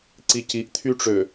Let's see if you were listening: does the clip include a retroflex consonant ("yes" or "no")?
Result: yes